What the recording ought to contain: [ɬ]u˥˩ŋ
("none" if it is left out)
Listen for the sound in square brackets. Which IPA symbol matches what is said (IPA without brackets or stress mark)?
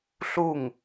ɬ